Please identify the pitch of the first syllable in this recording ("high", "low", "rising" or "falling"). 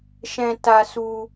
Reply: high